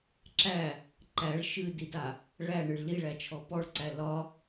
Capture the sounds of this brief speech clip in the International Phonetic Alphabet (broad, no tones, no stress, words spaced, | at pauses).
ǁæ | ǃæɭ ʃɨdida | ɭæɳɨɭ liɭæt͡ʃʰɔ pɔɭǀæ lɒ